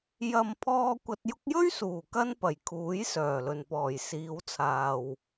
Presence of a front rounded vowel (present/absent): present